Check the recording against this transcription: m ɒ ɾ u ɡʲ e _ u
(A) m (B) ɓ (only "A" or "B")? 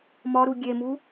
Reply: A